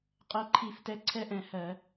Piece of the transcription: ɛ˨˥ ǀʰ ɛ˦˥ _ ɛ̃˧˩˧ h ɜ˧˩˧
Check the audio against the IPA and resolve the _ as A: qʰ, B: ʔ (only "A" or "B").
B